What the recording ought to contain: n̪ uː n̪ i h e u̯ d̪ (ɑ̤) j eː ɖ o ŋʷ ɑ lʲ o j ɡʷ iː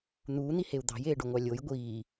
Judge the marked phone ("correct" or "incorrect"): correct